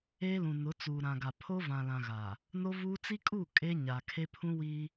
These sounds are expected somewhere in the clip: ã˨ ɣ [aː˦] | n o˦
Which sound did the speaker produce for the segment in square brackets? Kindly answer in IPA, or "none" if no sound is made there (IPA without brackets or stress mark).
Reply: aː˨